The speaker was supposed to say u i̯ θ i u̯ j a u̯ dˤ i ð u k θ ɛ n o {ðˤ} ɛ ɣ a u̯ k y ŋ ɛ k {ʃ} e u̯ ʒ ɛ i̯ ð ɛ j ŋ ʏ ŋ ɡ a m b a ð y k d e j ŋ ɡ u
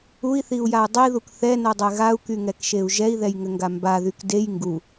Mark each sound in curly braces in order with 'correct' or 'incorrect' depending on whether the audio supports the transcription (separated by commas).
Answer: incorrect, correct